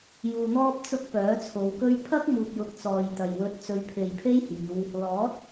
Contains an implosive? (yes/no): no